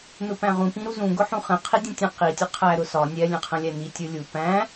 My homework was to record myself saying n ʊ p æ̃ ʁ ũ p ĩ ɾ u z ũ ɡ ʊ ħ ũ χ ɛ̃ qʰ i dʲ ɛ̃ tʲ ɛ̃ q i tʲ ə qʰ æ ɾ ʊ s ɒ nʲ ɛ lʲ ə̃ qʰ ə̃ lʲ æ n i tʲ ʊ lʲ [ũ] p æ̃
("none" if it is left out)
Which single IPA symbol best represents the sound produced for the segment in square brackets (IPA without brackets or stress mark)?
u